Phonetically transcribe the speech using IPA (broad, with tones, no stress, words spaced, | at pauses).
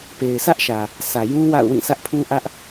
pe˨ɪ̯sʰä˦ʔʃä˨ | sʰä˨jũ˦ wa̰˦˨ʊ̯wĩ˦˨sä˦ʔ pʰũ˦ʔä˦ʔ